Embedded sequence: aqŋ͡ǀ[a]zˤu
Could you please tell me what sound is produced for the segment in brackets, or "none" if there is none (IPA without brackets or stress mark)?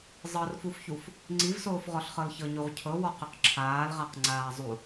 aː